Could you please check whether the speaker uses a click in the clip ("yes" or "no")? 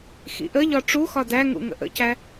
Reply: no